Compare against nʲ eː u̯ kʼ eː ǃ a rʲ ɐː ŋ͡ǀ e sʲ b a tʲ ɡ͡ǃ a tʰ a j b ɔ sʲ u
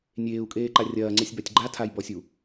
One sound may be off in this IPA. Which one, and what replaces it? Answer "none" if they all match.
none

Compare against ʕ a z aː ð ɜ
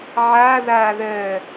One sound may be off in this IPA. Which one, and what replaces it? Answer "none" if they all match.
z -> ð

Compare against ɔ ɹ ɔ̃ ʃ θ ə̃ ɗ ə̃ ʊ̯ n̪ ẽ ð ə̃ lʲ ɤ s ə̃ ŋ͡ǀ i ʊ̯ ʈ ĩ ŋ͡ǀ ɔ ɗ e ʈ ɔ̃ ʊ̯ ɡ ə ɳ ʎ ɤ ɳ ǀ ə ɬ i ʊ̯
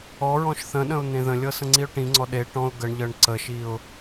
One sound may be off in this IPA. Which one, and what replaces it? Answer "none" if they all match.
ɬ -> ʃ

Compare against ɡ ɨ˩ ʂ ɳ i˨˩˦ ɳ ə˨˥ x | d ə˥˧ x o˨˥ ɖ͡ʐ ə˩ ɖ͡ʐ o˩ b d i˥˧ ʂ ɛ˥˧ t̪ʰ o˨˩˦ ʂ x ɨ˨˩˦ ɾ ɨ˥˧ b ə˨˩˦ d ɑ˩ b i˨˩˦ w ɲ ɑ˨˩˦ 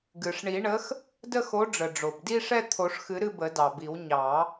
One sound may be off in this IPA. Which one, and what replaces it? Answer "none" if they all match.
none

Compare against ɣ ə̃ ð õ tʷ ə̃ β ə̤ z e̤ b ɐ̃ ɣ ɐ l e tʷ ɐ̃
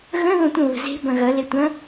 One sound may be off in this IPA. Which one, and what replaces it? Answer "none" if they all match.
none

